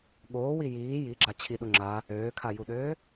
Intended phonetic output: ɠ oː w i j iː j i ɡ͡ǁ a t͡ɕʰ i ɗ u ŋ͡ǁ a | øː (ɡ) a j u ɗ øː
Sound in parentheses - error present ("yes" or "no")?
yes